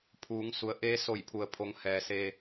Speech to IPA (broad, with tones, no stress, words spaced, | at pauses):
pʰuː˩˧ŋ su˩˧ə̯ ʔeː˧˥so˧˩jpʰu˩ə̯pʰo˩˧ŋ hɛː˩seː˧